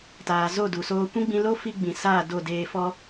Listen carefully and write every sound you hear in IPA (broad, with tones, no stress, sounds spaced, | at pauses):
t aː˨ z o˦˨ d u˨ s oː˧ kʷ ĩ˦ ɡ͡b ĩ˧ l o˦ f i˦ ɡ͡b ĩ˨ s aː˦˨ d o˦˨ d eː˧ f ɔ˦